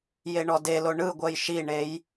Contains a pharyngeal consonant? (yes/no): no